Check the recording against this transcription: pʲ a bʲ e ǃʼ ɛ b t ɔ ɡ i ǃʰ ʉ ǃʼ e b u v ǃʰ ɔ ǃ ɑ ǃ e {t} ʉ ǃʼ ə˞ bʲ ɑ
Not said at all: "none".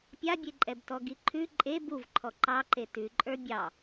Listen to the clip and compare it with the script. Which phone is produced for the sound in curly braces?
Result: t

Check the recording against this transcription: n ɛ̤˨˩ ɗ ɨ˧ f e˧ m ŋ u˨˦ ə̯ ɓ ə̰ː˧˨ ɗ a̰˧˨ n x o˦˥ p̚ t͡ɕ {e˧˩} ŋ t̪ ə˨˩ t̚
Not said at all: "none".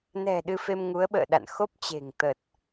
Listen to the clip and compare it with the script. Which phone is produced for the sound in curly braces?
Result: e̤˨˩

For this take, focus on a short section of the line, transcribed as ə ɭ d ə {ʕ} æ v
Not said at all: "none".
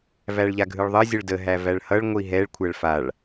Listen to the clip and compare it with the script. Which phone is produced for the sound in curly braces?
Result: ɦ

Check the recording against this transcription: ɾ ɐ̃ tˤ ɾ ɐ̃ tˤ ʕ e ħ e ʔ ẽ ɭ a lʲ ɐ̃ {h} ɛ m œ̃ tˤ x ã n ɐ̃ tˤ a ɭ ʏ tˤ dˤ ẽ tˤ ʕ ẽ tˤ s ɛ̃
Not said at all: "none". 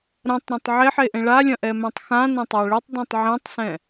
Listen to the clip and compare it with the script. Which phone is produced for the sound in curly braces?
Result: ʔ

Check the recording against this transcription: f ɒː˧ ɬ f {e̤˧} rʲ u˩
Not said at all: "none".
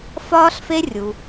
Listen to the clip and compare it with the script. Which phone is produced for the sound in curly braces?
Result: e˧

